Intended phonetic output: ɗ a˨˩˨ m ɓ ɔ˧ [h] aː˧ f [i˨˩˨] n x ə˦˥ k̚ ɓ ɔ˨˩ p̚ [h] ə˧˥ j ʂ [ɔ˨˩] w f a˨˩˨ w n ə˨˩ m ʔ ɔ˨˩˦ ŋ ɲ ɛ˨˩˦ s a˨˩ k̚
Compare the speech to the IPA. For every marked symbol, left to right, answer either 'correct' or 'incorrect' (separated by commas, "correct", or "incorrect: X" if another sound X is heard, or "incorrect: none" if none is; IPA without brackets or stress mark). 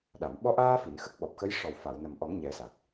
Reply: incorrect: ʔ, correct, incorrect: x, correct